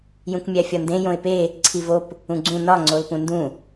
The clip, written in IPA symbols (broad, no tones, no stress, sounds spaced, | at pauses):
j ũ k mʲ æ fʲ ɒ n d ẽ j õ ɪ̯ p e | ǀʰ i v o p | ũ ɡ͡ǀ ũ n ɒ ŋ͡ǀ o l p ũ n d ũ